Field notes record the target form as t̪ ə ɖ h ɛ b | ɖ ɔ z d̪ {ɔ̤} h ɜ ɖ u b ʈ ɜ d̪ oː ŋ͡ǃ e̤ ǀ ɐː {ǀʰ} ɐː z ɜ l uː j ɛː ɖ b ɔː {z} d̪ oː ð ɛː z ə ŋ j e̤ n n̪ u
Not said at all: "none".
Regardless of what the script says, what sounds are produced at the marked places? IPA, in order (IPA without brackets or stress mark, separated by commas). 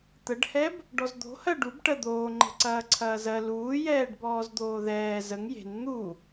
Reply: o̤, ǀʰ, z